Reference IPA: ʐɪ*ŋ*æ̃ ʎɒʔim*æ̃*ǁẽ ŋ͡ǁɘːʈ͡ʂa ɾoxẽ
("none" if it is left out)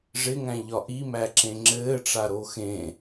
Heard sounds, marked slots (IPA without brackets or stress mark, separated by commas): ŋ, æ